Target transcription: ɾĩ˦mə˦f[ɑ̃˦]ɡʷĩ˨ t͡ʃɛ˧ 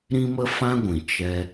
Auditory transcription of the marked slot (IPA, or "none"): ã˦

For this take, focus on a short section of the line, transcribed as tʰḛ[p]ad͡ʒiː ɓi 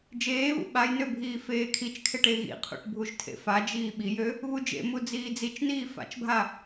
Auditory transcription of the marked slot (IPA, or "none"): f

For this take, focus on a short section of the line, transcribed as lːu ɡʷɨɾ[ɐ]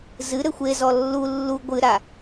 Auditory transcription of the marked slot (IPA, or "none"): a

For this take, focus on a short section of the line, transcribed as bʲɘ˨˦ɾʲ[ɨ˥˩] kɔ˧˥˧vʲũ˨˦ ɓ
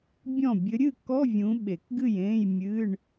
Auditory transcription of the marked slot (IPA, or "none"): ɨ˥˩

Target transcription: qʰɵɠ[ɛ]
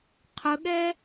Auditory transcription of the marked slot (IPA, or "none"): ɛ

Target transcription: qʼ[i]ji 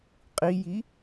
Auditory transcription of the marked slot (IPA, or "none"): i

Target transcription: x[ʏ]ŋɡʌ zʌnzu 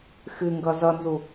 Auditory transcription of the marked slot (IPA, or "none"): ɨ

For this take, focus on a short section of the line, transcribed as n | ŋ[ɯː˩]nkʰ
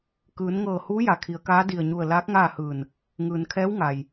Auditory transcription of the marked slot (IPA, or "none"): ɯː˩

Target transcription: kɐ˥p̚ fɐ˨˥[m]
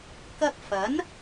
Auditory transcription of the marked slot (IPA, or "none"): n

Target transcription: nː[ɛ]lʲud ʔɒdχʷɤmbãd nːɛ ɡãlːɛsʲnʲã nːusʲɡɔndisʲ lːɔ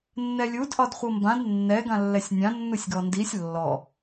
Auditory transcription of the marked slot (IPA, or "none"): ɛ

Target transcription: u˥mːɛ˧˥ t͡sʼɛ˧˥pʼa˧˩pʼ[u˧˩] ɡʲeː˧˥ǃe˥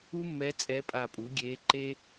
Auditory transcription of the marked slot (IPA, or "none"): u˩˥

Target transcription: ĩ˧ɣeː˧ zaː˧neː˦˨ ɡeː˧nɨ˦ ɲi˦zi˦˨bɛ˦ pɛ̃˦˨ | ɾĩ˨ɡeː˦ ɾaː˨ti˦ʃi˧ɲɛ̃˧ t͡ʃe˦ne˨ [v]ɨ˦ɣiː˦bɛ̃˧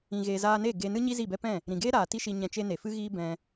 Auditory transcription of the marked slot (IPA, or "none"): f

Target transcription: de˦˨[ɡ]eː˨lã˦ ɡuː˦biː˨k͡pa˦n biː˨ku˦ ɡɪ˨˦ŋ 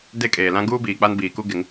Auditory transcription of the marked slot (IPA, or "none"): kʼ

